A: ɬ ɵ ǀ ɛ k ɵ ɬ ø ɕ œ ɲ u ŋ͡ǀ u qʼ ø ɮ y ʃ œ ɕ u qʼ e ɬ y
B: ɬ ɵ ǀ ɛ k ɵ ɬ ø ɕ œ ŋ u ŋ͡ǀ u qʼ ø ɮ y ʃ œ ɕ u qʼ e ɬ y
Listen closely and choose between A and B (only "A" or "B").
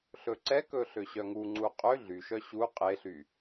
B